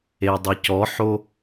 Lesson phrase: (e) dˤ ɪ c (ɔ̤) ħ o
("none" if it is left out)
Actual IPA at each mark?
e, ɔ

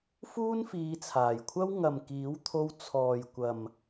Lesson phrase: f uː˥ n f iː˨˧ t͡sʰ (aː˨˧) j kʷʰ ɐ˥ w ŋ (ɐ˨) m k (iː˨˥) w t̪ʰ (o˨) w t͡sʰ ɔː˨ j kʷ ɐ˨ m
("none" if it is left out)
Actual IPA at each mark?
aː˨˩, ɐ˨, iː˨˥, o˧

